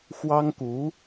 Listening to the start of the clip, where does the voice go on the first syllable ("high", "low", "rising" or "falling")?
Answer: high